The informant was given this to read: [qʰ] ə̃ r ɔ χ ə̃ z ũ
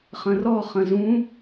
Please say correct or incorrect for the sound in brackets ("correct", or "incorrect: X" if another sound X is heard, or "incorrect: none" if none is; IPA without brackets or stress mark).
incorrect: χ